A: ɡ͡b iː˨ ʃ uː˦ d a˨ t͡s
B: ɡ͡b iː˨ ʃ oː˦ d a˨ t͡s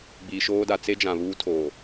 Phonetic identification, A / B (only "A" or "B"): B